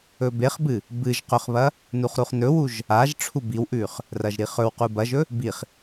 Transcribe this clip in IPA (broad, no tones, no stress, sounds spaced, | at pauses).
ɵ b e χ b ɨ | b ɨ ʒ q ɵ χ β ɐ | n u χ ɾ u χ n ɵ w u ʒ | a ʒ ʈ͡ʂʰ u b i w ʔ ʉ χ | r ɐ ʒ ɾ i χ ɵ w q u b ɐ ʒ ɵ | b i χ